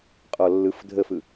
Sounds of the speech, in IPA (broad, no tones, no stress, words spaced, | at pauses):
qʼɔlːɯf dʱəfɯ